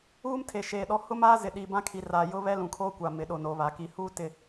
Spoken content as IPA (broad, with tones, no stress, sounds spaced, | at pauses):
uː˦ m tʰ e˨ ʃ eː˨ ɗ ɔ˦ h ʊ˦ m aː˦ z ɪ˨ ɗ i˨ b ã˦ kʰ i˨ r aː˨ j ʊ˦ β ɛ˦ l ũ˨ kʰ oː˦ kʷ a˨ m ɪ˨ ɗ o˨ n o˨ β a˨ k i˨˦ h uː˦ t ɪ˨